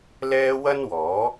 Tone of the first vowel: high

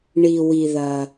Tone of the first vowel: low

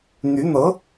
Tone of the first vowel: rising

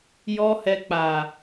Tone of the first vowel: high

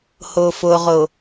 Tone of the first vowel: low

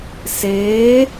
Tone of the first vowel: rising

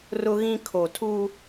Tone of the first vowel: high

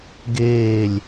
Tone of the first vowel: falling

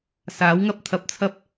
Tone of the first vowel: rising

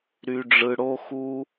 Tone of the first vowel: high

